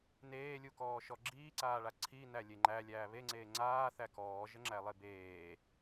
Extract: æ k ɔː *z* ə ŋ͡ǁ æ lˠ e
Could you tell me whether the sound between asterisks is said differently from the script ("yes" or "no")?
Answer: yes